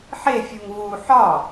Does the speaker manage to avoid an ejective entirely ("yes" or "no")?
yes